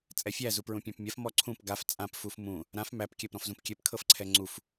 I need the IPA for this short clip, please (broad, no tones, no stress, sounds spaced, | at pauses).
t͡sʼ ɛ fʲ æ z u p ɹ ũ pʲ ã p mʲ a f m ɔ ǀʰ ũ p ɡ a f t͡sʼ ã p f u f m ũ | ɾ ã f m æ p kʲ æ p ɾ ɔ̃ f z ũ p kʲ ɛ p kʰ ɤ f ǀʰ ɛ ŋ͡ǀ u f